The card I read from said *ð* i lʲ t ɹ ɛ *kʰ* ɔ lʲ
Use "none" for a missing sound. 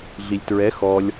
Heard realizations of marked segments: ɮ, x

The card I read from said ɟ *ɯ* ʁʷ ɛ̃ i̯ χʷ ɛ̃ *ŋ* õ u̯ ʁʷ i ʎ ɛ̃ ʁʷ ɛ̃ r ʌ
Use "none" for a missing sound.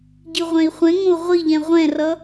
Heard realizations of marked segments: ɯ, ŋ

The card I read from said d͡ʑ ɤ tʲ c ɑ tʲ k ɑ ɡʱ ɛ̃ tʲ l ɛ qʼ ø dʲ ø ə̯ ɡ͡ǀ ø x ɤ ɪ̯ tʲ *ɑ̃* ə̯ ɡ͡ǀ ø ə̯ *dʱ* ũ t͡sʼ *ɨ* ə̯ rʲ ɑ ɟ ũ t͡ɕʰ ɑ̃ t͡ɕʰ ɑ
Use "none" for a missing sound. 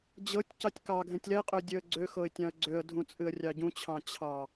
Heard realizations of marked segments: ɑ̃, dʱ, ɨ

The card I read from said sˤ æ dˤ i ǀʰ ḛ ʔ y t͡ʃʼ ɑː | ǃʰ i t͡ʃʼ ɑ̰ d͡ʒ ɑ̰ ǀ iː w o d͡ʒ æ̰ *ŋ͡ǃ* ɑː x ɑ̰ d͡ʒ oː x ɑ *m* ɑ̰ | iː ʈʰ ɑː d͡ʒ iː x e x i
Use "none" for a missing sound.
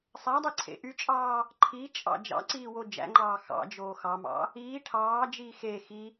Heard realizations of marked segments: ŋ͡ǃ, m

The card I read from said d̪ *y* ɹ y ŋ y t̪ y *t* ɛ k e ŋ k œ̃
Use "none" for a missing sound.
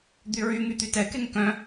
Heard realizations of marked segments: y, t

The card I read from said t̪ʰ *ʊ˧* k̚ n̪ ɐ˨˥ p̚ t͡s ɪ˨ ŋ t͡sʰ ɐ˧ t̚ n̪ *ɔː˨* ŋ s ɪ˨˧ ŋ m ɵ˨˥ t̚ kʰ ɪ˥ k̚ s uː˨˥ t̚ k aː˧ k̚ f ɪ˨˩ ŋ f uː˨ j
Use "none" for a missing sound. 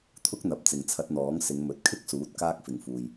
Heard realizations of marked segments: ʊ˥, ɔː˨˥

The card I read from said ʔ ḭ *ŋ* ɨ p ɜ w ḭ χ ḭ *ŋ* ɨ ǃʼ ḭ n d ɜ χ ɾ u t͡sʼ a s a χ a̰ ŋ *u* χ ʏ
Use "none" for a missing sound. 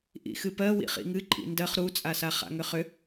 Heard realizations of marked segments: x, ŋ, ʏ

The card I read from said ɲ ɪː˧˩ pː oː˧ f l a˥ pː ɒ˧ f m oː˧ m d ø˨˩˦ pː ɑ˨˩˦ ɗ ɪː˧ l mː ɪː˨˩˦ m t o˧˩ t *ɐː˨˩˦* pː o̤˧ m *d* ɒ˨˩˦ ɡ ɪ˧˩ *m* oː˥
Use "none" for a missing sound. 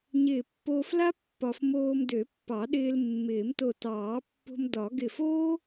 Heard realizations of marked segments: ɑː˨˩˦, d, f

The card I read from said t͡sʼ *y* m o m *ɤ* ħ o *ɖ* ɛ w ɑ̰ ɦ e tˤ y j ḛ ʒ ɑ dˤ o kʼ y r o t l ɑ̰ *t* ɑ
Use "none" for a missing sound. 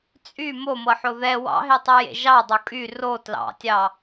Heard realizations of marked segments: y, ɤ, ð, tʲ

